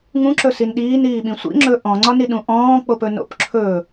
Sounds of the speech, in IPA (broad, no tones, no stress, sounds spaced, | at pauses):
ŋ ũ ǁ ɵ s i n ɗ iː n iː ɓ ĩ sʷ ḭ ŋ͡ǁ ɵ ʔ ɔ̃ ŋ͡ǀ ɒ n i ɗ ũ ʔ ɔ̃ː k͡p o p ɵ n o̰ p ǁʰ ɵ